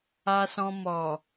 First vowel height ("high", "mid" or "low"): low